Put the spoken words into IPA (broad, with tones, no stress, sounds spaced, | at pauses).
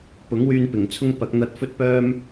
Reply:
p ʊ˨˥ ŋ w yː˧ n p ɪ˨˩ ŋ t͡sʰ ʊ˥ ŋ p ɐ˨˥ k̚ n̪ ɐ˧ t̚ f ɵ˥ t̚ p œː˥ m